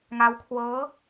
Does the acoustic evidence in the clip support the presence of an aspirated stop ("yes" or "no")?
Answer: yes